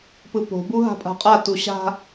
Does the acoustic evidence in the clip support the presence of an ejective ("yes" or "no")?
yes